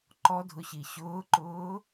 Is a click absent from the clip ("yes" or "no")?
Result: no